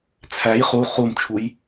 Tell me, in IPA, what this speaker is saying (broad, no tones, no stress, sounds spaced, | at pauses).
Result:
t͡sʰ æ j χ u χ u m t͡ʃʰ u j